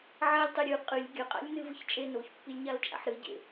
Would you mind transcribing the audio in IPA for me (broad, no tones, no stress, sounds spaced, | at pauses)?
ʕ a lʲ tˤ e ɾʲ ɨ qʼ ɨ lʲ ɡʲ ɐ qʼ a̰ lʲ n ɨ v ɨ ç t͡ʃʼ e n o ç pː i lʲ ɲ a l t͡ʃʼ a̰ ħ ɾ ɨ ɟ ḛ